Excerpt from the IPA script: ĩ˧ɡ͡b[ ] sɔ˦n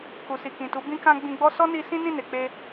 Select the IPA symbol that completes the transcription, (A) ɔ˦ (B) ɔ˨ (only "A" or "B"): A